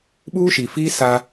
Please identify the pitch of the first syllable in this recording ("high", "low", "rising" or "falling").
high